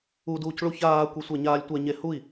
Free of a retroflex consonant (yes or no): no